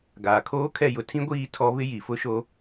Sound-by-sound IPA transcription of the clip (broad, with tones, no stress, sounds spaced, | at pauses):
ɡ aː˨ kʰ oː˦ kʰ ɛ˦˨ j ʊ˨ tʰ ĩ˦ ɡʷ iː˦˨ tʰ ɔ˦ β ɪ˦ j i˨ f ʊ˦ ʃ o˦